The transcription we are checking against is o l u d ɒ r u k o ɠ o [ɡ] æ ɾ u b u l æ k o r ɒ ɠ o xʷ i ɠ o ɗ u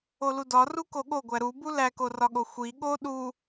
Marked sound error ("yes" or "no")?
yes